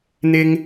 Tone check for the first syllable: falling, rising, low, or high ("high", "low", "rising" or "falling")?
high